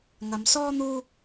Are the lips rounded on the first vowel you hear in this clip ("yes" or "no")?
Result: no